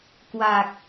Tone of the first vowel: low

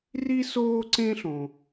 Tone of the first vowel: high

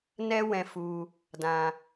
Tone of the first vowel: high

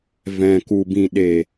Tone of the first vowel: low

